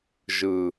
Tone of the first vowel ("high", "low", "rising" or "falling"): low